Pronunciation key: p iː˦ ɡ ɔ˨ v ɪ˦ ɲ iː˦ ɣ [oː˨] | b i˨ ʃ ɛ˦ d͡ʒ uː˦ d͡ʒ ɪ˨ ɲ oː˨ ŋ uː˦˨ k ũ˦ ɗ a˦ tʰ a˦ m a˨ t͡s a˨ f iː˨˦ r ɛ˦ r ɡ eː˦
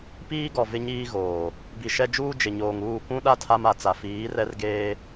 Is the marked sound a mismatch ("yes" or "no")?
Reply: no